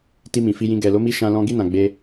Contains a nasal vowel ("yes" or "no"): yes